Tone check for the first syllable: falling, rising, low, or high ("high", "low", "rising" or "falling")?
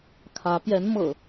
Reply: rising